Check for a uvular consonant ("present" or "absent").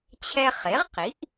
present